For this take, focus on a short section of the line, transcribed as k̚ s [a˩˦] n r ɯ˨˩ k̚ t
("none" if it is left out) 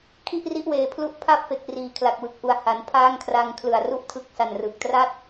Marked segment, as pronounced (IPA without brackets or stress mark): a˨˩